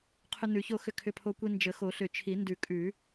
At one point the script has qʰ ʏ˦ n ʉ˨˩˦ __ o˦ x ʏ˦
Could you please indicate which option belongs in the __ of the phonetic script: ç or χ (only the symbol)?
ç